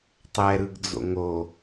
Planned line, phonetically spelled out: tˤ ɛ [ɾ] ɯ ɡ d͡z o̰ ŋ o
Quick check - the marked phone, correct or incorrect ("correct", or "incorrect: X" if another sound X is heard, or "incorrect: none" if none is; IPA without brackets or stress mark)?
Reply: correct